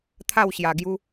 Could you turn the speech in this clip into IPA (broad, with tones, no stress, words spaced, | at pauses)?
t̪ʰa˥˧wɕja˧ɡju˦